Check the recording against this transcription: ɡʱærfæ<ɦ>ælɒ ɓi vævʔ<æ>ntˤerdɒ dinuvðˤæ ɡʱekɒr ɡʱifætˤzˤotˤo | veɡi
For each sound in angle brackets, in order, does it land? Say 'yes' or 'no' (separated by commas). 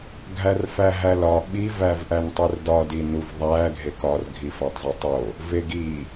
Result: yes, yes